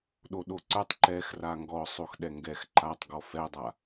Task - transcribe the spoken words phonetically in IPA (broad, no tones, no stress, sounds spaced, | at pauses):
ɗ o ɗ o ǀ ə˞ tˤ ǃ ɛ x r a ŋ ɡ ɔ sˤ o x ɗ ɛ ŋ ɡ ɛ x ǃ a tˤ ɡ ɔ f ɛ dˤ a